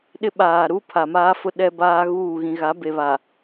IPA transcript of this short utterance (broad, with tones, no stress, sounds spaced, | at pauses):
ɗ ɪ˦ ɓ aː˨ ɾ u˦ pʰ a˨ m aː˦ f ʊ˦ ɗ ɛ˦ b aː˦ ɣ uː˦˨ ɣ ĩ˨ ɣ a˨˦ b e˨ β a˨